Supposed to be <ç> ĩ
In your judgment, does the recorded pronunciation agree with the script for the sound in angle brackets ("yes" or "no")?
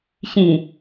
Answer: yes